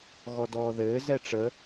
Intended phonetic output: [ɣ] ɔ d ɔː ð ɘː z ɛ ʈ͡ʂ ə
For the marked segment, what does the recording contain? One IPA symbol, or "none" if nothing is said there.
ɣ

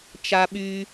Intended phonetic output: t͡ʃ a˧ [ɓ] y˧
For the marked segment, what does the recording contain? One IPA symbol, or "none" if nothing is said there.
ɓ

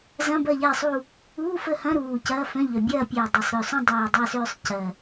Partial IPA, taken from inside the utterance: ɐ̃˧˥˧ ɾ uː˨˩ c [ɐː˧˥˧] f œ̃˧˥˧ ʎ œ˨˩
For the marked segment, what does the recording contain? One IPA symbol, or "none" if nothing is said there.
ɐː˧˥˧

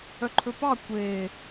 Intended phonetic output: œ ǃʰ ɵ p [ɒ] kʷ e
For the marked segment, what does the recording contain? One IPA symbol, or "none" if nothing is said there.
ɑ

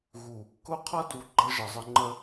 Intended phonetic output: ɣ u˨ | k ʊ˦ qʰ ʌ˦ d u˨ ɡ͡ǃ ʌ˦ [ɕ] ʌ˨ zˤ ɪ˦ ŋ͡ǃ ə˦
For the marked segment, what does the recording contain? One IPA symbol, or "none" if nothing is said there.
ʒ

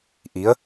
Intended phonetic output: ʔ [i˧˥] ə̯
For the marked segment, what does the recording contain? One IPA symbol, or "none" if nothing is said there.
i˧˥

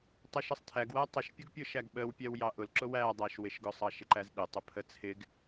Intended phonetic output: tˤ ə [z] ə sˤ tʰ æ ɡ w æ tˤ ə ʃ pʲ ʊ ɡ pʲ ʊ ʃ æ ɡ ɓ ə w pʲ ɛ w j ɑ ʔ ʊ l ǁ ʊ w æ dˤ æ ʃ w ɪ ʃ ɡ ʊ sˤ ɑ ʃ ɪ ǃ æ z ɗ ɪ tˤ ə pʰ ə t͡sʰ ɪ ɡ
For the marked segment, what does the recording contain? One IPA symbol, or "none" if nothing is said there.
ʃ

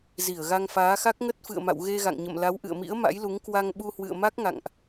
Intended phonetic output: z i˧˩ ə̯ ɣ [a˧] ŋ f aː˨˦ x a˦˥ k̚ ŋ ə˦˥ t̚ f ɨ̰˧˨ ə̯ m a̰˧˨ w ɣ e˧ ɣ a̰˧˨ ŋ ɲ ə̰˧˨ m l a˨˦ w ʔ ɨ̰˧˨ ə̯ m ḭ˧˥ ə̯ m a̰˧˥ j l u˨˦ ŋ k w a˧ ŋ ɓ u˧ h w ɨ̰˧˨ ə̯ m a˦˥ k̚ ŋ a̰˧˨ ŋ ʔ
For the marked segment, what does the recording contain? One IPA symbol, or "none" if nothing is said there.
a˧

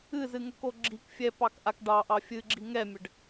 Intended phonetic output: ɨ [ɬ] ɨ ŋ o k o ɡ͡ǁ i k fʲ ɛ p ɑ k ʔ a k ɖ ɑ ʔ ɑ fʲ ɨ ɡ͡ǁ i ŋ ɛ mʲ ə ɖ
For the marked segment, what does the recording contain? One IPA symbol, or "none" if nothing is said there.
z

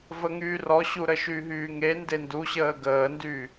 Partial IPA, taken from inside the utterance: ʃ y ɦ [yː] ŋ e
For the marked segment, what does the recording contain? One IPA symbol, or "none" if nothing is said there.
yː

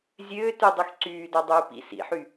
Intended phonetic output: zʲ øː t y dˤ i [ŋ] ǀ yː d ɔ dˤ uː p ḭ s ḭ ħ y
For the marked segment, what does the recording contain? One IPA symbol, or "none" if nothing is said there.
x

